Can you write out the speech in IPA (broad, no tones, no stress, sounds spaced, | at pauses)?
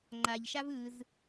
ŋ͡ǃ a ʎ ʃ a v ɯ z